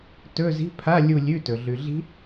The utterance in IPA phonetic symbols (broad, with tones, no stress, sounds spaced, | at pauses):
t ɵ˧˥˧ z i̤˧˥˧ pʰ a˧˥˧ lʲ u˦˨ lʲ ʉ˧˥˧ t ɵ˨ ɮ ʉ˨ ɮ i̤˦˥